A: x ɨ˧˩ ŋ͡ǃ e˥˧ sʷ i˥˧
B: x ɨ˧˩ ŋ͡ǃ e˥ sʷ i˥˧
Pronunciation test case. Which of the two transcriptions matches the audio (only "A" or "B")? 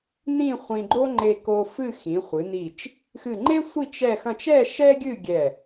B